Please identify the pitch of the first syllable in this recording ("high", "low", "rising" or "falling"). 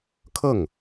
falling